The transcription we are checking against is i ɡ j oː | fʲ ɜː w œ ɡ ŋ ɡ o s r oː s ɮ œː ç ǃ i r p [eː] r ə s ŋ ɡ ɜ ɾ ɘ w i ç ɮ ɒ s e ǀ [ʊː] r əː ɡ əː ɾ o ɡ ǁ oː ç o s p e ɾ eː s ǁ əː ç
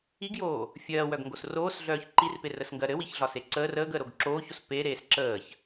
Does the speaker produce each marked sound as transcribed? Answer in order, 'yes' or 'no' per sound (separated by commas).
no, no